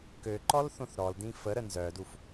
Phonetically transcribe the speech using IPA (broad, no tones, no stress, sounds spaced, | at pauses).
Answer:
k ø ǃ ɔ l θ õ θ ɾ ɔ l d ĩ f ə ɾ ə n z œ d u f